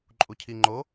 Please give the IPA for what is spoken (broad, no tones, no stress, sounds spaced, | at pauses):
ǃʼ u cʰ i ŋ͡ǃ o